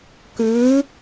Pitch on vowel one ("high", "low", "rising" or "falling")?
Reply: rising